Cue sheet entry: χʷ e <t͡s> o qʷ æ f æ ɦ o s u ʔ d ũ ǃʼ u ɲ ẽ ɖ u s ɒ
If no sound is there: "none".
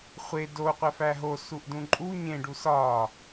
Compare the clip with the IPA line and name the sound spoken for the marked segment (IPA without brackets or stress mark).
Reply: d